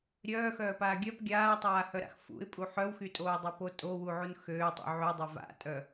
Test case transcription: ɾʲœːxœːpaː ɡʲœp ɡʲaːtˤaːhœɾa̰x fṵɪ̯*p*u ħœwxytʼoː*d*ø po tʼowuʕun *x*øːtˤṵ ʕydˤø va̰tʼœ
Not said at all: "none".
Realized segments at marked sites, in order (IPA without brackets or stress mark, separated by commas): pʼ, dˤ, x